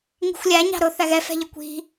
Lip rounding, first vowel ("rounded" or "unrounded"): unrounded